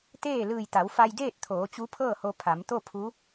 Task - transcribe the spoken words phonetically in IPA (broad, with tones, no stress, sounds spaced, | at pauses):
t̪ eː˥˨ l ɯː˧˩ j t̪ a˩˧ w f a˧ j d eː˥˨ t̚ t̪ʰ oː˩˧ t͡ɕ u˧˥ pʰ ɤː˥˨ h o˧ pʰ a˩˧ m t̪ o˥˨ pʰ u˧˥